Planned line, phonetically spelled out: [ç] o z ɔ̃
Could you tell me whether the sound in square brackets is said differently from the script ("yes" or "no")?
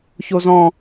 no